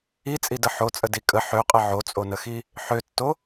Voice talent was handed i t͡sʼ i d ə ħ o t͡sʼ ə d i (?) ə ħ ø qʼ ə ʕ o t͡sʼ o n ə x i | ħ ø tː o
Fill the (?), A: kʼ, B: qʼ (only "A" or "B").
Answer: A